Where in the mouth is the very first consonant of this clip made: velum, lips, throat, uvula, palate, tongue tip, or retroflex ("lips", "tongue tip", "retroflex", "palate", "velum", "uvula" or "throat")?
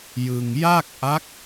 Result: palate